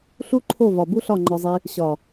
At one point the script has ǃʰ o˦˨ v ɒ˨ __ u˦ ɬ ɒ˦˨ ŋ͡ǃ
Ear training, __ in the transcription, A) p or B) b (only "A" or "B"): B